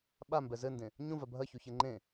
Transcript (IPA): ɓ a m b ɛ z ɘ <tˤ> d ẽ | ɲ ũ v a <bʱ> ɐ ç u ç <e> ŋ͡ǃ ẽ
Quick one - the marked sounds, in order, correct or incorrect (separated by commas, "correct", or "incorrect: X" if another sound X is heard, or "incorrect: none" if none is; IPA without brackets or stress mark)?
incorrect: n, correct, correct